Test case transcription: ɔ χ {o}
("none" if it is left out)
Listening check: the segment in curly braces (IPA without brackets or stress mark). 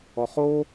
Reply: o